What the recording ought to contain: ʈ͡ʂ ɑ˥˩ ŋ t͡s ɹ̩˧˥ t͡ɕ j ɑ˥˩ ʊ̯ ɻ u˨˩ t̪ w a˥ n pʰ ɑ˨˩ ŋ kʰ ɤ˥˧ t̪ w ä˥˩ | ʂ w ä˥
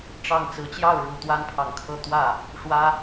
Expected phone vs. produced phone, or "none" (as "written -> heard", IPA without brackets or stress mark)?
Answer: none